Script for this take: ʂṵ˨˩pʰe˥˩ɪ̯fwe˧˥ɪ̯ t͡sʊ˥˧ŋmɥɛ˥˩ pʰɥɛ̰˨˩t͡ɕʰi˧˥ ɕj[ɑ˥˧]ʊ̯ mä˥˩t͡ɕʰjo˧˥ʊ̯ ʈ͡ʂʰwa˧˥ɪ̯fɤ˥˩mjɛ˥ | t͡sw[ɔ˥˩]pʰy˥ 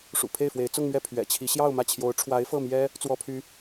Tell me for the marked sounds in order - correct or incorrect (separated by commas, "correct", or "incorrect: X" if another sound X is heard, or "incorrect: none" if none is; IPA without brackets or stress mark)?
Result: correct, incorrect: ɔ˥